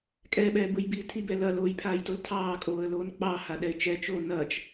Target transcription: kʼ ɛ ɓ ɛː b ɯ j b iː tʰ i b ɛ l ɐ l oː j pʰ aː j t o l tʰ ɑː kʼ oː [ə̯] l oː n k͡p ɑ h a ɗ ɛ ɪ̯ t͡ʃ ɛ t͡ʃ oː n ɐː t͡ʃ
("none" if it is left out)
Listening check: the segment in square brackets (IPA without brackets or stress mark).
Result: ə̯